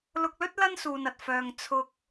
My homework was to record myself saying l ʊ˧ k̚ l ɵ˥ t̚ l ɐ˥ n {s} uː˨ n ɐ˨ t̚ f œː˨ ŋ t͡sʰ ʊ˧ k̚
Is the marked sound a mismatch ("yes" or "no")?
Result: no